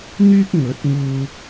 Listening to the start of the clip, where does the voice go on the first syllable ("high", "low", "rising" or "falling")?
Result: high